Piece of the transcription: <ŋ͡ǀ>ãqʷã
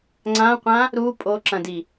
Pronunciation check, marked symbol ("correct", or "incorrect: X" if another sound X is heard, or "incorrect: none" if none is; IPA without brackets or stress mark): correct